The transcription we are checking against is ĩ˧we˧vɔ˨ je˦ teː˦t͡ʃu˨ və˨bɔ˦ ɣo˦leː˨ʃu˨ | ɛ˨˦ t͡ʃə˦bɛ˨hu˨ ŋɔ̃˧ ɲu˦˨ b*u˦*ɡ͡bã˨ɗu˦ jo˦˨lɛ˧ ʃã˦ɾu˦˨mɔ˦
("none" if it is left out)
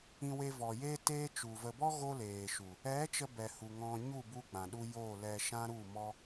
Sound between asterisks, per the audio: u˦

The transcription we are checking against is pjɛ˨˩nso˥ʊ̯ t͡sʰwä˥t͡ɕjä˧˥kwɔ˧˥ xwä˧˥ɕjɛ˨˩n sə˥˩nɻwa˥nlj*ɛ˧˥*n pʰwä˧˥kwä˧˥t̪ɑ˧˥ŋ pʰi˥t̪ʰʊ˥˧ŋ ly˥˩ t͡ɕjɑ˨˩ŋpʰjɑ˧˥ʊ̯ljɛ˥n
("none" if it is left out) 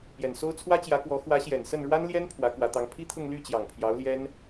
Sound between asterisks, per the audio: ɛ˥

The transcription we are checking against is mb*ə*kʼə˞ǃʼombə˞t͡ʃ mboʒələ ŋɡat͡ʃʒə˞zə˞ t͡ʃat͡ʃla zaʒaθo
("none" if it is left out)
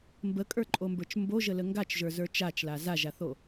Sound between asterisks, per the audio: ə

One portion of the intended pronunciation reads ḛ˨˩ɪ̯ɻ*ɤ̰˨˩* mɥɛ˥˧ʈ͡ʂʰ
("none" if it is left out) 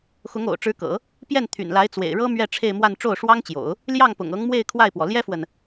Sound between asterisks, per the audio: ɤ˥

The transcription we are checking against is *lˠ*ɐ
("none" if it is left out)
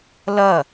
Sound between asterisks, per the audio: l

